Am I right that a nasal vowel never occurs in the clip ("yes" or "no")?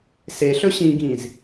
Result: no